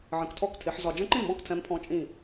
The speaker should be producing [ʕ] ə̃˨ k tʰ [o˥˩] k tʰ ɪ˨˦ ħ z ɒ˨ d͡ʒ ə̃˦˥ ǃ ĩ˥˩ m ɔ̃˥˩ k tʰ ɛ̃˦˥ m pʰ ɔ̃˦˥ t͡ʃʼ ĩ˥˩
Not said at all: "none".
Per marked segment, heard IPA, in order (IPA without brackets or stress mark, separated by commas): ʕ, ɔ˥˩